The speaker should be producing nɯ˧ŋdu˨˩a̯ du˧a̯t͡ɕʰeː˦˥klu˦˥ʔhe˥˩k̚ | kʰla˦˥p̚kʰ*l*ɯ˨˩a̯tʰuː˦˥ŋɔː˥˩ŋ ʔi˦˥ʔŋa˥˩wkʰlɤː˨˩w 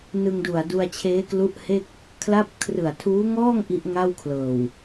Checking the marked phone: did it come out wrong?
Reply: yes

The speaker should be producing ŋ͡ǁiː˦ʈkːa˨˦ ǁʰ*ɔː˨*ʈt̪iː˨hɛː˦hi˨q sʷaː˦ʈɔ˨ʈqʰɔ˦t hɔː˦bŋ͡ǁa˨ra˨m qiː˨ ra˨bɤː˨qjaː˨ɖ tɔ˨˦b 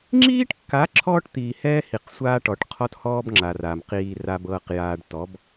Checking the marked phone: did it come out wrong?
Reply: yes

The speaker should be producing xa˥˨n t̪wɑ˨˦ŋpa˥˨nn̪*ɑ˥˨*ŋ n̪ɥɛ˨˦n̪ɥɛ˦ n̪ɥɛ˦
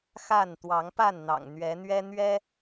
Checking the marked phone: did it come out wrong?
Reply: yes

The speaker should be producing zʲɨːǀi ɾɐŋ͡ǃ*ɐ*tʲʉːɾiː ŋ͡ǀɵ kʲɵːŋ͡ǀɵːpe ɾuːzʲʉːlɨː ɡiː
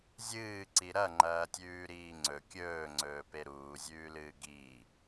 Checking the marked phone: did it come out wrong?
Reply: yes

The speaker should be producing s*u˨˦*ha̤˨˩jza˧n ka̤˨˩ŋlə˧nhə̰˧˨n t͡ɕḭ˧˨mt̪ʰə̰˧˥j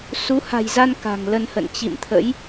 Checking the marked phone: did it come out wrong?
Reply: no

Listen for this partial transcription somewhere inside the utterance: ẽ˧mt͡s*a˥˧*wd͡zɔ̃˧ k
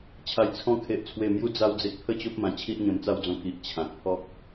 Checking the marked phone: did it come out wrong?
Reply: no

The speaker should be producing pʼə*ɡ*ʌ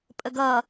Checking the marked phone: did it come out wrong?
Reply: no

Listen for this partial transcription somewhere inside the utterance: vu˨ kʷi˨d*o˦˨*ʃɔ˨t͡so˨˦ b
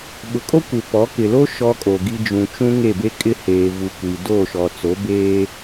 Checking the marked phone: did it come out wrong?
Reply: no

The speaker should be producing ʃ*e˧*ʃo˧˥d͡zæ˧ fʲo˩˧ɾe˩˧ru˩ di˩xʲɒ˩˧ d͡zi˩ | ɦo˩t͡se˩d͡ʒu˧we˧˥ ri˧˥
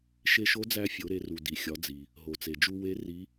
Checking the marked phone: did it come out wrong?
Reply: no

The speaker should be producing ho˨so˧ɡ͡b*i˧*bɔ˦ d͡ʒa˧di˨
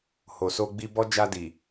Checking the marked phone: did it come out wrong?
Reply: no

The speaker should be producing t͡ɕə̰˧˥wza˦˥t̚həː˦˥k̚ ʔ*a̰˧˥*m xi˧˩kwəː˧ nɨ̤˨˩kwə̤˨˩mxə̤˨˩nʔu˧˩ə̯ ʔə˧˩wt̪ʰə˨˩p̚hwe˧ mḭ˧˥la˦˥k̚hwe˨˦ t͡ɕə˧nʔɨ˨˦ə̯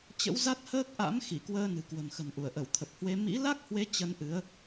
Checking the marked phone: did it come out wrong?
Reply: no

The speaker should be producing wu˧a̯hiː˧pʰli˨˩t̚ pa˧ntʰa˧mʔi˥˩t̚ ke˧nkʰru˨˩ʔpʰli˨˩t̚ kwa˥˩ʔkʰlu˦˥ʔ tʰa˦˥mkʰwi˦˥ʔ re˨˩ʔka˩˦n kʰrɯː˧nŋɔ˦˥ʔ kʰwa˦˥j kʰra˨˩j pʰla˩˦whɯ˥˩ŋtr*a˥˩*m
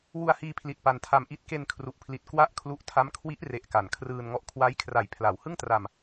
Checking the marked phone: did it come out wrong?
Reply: yes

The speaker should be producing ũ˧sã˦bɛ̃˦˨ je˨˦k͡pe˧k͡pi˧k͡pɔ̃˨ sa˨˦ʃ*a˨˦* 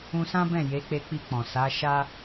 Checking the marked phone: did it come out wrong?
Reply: yes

